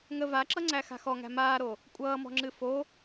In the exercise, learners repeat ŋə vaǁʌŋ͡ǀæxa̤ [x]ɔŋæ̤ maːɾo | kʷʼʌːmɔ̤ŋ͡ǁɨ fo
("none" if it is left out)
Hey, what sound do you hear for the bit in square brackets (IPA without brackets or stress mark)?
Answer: x